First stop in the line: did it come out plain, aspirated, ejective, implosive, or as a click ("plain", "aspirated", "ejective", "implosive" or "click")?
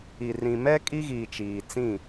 ejective